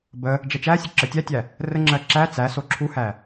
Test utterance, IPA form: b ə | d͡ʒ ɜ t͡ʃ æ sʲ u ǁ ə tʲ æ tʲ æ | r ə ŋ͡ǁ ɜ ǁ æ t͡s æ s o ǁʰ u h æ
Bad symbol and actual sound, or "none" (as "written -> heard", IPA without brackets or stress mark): none